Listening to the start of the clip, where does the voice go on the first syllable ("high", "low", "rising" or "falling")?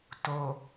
low